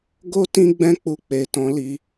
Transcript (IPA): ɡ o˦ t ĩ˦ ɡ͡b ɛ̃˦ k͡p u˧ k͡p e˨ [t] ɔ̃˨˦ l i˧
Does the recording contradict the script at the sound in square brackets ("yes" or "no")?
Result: no